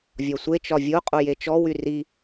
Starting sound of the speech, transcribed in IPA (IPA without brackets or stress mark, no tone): vʲ